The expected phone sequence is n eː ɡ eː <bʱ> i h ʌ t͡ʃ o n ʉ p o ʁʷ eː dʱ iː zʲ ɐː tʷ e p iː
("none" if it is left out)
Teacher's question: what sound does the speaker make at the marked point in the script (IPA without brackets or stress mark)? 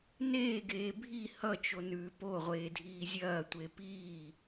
bʱ